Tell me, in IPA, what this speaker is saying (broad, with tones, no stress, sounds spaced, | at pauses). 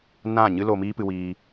n ã˦˨ ɲ ɨ˦ l o˧ m iː˦ p ɨ˧ w iː˧